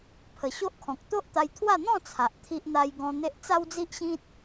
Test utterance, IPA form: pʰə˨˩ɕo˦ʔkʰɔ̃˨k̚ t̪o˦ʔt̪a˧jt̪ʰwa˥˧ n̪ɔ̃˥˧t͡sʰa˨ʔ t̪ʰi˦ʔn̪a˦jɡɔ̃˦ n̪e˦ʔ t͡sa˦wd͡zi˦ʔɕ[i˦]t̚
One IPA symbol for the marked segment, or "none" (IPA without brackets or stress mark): ĩ˦